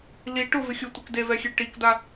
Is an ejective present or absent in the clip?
absent